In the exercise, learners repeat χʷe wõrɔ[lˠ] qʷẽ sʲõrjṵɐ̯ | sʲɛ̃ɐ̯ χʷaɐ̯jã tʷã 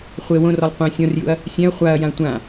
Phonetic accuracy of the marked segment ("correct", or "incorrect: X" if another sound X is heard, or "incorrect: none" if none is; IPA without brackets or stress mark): correct